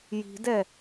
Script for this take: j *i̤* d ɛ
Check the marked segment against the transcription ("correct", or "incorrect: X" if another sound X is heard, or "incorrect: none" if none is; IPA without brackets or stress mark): correct